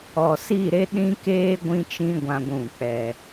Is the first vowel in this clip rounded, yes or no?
yes